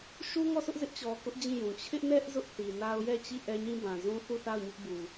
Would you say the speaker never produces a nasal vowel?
no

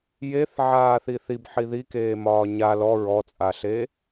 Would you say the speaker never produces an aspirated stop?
yes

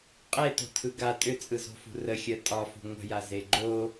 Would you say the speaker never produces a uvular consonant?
no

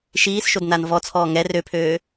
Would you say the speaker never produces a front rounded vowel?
no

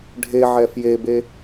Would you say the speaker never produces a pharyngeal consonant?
no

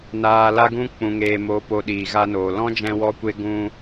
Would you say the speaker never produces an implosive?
no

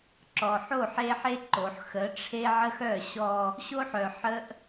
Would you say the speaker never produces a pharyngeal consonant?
no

